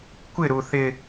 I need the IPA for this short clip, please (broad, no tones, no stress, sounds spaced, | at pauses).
kʷ ɪ ɾ u θ ɪ